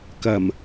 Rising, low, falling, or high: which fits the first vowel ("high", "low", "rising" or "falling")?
low